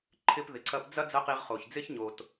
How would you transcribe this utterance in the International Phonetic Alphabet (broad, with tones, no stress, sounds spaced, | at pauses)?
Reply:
ǃʰ ɪ˧ p ð ɪ˩ ǀ ɐ˧ p d͡z ɐ˥ d͡z ɐ˥ q i˧ ʁ χ o˩ ç d͡z ɪ˥ ç ɲ o˩ t